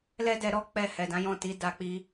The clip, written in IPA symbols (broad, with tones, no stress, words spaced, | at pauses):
lɛ˦dɛ˧ ɾɔ˧ k͡pɛ˧ hɛ˨dã˨˦jɔ̃˦˨ti˨˦ da˦k͡pi˦